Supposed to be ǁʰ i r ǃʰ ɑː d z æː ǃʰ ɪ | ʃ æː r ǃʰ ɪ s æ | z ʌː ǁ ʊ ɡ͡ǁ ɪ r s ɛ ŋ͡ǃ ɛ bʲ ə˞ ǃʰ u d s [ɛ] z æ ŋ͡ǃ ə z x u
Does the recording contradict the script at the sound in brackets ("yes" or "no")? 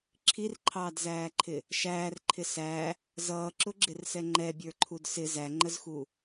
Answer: yes